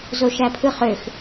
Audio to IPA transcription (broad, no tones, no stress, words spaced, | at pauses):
zoʃæpʰɯχøx